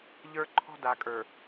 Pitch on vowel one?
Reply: high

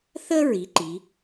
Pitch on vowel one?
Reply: high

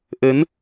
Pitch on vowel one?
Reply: rising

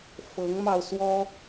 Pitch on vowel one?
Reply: rising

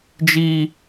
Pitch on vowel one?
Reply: high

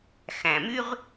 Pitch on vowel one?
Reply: low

